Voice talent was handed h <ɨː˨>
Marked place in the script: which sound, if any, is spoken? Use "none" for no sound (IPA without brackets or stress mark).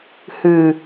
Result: ɨː˨